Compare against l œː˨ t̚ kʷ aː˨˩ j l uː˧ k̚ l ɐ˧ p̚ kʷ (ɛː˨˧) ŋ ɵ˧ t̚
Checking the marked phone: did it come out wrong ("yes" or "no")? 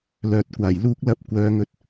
yes